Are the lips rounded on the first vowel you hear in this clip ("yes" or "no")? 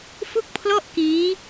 yes